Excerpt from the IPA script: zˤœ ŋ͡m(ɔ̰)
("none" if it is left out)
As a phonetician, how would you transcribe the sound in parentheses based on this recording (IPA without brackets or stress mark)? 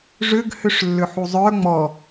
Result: ɔ